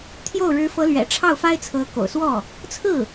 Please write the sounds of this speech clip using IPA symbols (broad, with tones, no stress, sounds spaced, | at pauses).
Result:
t̪ʰ j o˥˩ ʊ̯ ɻ ɻ̩˧˥ f ɤ˧˥ l ɥ ɛ̰˨˩ ʈ͡ʂʰ ɑ˥˩ ʊ̯ f a˥ ɪ̯ t͡sʰ ɤ˧˥ k o̰˨˩ ʊ̯ s w ɔ˥˩ | t͡sʰ ɹ̩˥˩